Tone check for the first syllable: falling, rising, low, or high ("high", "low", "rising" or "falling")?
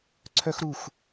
high